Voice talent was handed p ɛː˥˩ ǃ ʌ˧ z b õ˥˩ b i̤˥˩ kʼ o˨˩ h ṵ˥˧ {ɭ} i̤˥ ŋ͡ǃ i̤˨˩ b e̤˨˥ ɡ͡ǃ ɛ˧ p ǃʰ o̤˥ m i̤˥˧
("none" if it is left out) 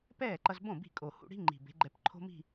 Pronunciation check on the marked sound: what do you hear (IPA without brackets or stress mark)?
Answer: ɽ